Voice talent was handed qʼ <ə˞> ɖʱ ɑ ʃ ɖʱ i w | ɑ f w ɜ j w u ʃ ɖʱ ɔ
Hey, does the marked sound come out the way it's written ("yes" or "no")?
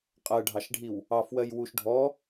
no